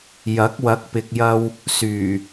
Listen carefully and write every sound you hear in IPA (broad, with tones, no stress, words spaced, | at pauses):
jɐ˨˥k̚ wɐ˨˥k̚pɪ˨k̚jɐ˧w | syː˨˩